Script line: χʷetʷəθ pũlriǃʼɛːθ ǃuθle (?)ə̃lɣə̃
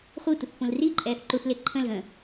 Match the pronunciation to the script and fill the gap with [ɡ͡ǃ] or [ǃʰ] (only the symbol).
ǃʰ